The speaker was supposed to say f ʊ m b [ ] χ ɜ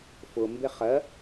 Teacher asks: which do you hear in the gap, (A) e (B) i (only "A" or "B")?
A